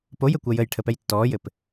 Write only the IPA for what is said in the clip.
pojɘ kʷɜjəjʈʰəpɛj tːɔːjɘp

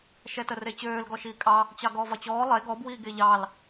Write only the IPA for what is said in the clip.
ʃɛtəret͡ɕøːl ɡɔʃiːkʼɑ | t͡ɕɑɡɔːvɒt͡ɕɔː lˠe ɡɔb wiːɡeʎɑl

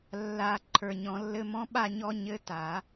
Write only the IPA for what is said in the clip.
lːa˨˩˦ ǃʰə˞˨ɲɔ̃˨˩˦lːɘ˧˥˧mɔ̃˦˥ ɓa˥˨ɲɔ˦˥ ɲɘ˧˥˧ ta˨˩˦

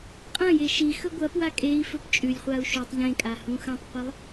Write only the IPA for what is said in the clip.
qʼɐ̃ jeʃixɵ ɡʷɐpwa kʼei̯fɵp t͡ʃʼʉlʲχʷau̯ ʃutˤ ʎẽkʼa hũxɐ̃tˤqʷelˠ

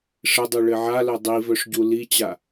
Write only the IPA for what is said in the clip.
ʂɘdˤu ɭɘʕalœ dˤivœʂ ɟulit͡ɕa

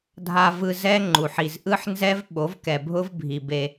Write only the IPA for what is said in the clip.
dʱa˨vɯ˨ zɛ˦ŋ͡ǃu˨ħ i˨zʔɯ˦ħnzɛ˦v ɓo˨˦vkɛ˨ bʱʊ˦vbʱi˨ be˦

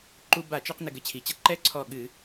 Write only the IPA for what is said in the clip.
ǃu˧ba˧˩˧t͡ʃɨ˧˩˧qnɘ˩ ɡɘ˧˩t͡ɕʰi˩t͡ɕɐ˥ ǃɛ˥ǀʰɔ˧˩ ɠɨ˧˩˧

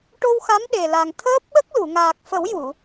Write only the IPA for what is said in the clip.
ʈo˧wxa˧˥m ɗe˨˩la˨˩ŋ t̪ʰəː˦˥p̚ɓə˦˥k̚lu˨˩˨ŋaː˨˩k̚ fə˨˩˦wju˨˩˨

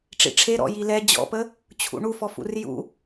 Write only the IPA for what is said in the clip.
ʈ͡ʂḭʈ͡ʂʰeɾɔ̰ jilɛ d͡ʑɔ̰pə | t͡ɕʰṵɳufɔfṵr jṵ

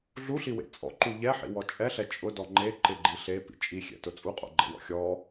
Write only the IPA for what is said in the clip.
ɮuɬiwḛ t͡sʼɔ̰ǃu ʎɛħḭwɔ t͡ʃʼɛɬɛ t͡ʃʼʊdɔ ŋ͡ǃe ǃɪɡ͡ǃi ɬepḭ t͡ʃʼixʲɛ̰tʊ t͡sʼuqʼo̰ɡ͡ǃɛ̰wɔ̰ xʲɔ

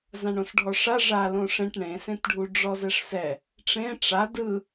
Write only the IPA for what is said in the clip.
zãɳõsɖʱɔʂa ʐa lõʂẽʈ ɳẽsẽt ɖʱuɖ͡ʐɔzɛʂsɛ | ʈ͡ʂẽ ʈ͡ʂa dɯ

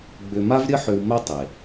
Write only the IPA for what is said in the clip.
ɡ͡bʏ˧ma˥vɾʲə˥ħʏ˧w mœ˥tˤe˩

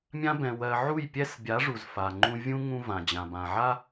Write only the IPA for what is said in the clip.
mʲã˦bɛ̃˨ wɜ˨ʕu˦˨jpʲɛ˦s bʲa˨˦ ʐu˨zfa˨ŋ͡ǃũ˦ vʲũ˦ ŋũ˦ vã˨d͡ʑã˨bã˨ ʕa˦

